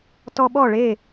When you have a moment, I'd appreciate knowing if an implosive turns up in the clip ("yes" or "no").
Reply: yes